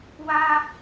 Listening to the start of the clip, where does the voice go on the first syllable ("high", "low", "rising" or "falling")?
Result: high